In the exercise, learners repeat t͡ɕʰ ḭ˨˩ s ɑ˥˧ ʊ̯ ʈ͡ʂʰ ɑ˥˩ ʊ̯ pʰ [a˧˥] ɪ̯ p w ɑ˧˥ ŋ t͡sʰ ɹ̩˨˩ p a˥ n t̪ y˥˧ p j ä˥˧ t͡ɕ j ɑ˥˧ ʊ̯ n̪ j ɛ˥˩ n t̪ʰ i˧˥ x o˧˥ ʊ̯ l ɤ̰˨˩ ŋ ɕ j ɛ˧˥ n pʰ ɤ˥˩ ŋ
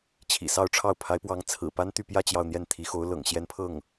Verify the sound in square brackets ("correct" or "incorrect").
correct